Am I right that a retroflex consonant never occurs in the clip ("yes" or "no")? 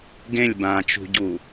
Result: yes